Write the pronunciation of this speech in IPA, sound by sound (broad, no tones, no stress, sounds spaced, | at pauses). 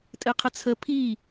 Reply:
tʼ ɘ qʰ ə t͡sʰ ə pʰ i